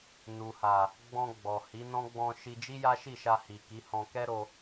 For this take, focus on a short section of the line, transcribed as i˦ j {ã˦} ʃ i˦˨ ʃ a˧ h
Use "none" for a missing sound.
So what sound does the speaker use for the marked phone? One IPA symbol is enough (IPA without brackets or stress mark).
a˦